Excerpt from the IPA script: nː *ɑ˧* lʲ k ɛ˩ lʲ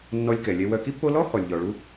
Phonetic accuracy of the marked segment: incorrect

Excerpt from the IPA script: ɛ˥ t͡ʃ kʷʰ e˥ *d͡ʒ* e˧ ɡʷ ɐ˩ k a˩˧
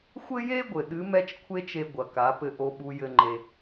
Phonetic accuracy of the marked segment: incorrect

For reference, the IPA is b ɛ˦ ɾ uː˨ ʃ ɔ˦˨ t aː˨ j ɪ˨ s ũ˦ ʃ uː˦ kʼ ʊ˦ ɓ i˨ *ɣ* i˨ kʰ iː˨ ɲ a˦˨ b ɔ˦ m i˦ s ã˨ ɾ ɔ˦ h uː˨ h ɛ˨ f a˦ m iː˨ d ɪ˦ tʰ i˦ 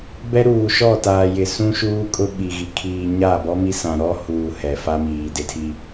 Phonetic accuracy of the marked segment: correct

